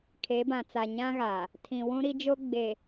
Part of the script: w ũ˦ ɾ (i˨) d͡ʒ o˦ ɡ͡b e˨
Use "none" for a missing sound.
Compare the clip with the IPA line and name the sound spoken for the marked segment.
i˦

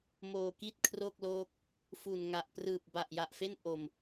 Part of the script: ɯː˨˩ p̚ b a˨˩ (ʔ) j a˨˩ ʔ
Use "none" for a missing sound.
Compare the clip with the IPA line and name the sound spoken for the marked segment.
ʔ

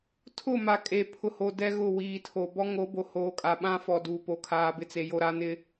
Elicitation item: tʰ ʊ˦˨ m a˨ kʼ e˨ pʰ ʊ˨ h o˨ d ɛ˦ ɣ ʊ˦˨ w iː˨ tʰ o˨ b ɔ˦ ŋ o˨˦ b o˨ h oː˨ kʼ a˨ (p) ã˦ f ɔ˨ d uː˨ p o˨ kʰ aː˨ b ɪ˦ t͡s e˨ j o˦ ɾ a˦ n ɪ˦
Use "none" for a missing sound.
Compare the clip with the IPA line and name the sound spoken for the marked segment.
ɓ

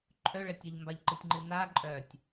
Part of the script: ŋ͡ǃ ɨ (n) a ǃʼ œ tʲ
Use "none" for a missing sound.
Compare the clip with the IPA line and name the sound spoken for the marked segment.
n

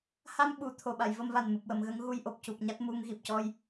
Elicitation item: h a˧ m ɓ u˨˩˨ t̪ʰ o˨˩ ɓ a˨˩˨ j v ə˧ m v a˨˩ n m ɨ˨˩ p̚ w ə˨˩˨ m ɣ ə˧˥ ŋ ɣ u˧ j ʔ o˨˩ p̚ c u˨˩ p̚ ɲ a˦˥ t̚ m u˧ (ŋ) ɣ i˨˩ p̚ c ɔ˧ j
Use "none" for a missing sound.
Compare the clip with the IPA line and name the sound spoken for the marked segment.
ŋ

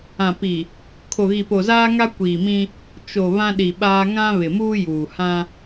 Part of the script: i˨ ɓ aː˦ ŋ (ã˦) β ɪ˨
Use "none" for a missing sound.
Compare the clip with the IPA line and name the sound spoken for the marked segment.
ã˦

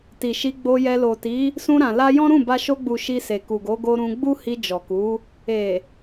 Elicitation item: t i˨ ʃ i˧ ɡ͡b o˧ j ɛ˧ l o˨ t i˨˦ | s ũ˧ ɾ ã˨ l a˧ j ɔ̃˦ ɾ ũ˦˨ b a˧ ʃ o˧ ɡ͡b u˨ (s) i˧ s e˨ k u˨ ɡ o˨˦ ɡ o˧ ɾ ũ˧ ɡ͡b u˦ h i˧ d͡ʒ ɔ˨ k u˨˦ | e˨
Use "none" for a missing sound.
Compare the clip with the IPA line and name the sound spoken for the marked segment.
ʃ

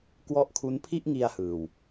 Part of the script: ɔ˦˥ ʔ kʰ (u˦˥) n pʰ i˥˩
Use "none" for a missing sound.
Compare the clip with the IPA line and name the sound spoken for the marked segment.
u˦˥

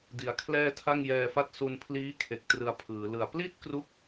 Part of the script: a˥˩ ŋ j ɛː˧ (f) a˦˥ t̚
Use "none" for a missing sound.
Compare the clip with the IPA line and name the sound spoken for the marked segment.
f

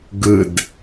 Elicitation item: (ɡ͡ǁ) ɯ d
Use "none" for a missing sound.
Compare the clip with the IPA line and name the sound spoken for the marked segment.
ɡ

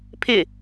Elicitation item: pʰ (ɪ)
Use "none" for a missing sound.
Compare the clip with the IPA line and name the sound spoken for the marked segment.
ɪ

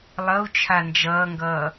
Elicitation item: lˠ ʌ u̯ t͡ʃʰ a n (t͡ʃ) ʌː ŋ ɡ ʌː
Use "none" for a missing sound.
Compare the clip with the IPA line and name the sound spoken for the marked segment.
d͡ʒ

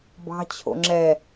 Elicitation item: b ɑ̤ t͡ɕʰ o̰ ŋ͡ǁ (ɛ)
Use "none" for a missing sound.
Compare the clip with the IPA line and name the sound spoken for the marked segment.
ɛ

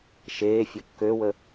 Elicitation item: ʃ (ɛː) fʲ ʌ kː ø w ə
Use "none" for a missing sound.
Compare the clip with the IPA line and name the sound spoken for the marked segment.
eː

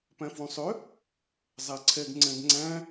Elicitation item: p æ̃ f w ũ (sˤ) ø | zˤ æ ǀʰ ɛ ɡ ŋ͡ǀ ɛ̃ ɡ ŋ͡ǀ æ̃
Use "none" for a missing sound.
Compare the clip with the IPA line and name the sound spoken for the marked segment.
sˤ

